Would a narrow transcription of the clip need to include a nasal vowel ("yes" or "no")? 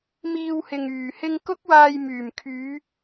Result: no